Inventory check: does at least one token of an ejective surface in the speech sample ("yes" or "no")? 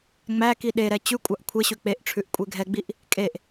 yes